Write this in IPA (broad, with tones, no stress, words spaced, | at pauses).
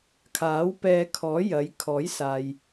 kʰaː˨˥wpɛː˧kʰɔː˨˥ jɐ˨˧j kʰɔː˨˥jsaː˨j